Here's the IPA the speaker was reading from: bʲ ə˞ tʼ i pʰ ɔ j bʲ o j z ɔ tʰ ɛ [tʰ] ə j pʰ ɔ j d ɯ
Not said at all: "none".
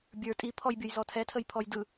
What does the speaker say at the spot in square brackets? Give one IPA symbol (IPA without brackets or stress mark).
tʰ